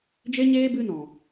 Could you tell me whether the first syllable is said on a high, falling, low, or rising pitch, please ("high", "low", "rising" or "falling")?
high